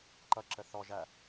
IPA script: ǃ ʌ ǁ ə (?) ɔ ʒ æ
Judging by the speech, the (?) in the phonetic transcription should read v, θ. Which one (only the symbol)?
θ